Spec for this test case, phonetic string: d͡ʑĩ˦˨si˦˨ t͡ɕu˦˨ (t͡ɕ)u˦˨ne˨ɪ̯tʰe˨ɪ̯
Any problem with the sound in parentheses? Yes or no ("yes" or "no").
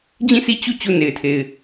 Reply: no